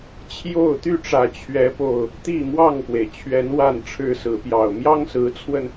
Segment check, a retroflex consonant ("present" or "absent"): present